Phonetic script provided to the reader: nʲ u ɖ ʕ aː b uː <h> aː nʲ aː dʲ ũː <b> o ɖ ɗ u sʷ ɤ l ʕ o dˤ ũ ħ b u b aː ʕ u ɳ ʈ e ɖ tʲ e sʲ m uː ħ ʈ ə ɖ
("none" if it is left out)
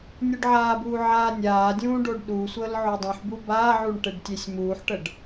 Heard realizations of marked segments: ʕ, ɖ

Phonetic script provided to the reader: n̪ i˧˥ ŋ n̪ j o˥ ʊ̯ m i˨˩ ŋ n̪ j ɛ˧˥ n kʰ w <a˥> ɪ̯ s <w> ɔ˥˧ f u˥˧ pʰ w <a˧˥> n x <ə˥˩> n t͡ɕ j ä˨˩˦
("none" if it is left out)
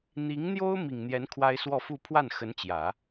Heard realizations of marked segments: a˥, w, a˥˩, ə˧˥

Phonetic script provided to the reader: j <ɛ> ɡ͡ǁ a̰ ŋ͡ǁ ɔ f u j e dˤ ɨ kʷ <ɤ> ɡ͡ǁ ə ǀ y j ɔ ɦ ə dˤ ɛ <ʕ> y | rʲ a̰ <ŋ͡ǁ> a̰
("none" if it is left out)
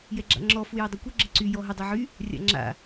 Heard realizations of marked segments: ɛ, ɤ, ʕ, ŋ͡ǁ

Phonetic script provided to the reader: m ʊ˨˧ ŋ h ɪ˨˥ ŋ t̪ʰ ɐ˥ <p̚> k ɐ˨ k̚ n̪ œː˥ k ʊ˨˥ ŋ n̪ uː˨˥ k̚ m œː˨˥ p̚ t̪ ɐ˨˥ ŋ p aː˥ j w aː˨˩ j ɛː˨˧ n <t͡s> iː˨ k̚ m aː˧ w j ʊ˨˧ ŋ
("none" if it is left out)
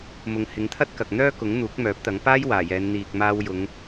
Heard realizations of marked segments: t̚, n̪

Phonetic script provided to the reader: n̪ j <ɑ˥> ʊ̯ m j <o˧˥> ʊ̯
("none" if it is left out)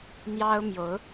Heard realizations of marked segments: ɑ˥, o˧˥

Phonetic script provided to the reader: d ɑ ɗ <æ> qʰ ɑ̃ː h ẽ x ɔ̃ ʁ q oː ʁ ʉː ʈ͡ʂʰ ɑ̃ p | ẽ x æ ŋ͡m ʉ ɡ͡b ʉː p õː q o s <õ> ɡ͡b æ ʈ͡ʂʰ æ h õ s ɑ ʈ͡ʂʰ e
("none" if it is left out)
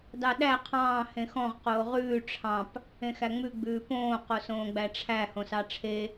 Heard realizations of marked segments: æ, õː

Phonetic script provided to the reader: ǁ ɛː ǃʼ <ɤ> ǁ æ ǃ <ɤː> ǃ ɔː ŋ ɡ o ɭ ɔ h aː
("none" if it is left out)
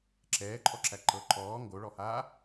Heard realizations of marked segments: ɔ, ɤ

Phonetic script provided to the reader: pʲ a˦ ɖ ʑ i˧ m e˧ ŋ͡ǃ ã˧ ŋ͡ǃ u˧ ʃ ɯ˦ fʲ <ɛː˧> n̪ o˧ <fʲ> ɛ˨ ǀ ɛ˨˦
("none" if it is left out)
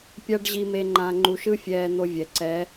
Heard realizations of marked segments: ɛː˧, vʲ

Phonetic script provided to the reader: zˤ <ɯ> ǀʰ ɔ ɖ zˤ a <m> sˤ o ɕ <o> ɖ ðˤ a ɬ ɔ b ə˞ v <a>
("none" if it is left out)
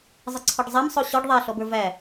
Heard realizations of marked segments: ɯ, m, ɔ, æ

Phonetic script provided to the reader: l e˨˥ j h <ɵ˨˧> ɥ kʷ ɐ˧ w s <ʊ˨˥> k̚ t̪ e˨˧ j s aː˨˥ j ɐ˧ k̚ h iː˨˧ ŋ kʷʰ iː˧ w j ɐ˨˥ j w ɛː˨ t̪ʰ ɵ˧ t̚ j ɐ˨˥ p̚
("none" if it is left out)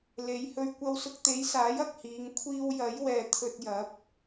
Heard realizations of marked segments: ɵ˧, ʊ˧

